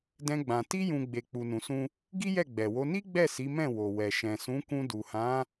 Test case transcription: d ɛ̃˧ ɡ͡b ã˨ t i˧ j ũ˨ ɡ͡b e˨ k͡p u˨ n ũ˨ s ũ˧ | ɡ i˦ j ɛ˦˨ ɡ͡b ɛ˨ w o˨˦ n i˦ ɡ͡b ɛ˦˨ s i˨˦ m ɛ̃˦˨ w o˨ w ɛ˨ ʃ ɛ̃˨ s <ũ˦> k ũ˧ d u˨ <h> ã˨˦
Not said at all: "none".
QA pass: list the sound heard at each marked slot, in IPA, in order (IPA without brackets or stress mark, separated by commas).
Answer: ũ˨˦, h